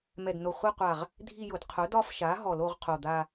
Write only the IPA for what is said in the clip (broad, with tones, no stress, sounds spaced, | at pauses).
m ɛ˧˩ d n o˧˩ χʷ i˥˧ qʷ a˧˩ ʁ | dʱ i˥˧ j ʊ˧˩˧ d qʰ ʊ˩˥ d ɒ˥˧ f ʃ a˩˥ ɦ ɔ˧˩˧ l o˥˧ ʁ qʰ o˧˩ d̪ a˥˧